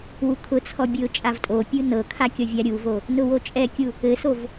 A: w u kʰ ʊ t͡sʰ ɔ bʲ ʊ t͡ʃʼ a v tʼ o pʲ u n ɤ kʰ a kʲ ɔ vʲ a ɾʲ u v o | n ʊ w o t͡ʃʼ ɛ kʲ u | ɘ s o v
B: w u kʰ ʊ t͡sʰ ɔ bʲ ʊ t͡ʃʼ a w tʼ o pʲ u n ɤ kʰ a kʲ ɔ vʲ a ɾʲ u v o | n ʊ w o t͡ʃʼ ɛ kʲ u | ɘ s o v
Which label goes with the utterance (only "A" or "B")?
A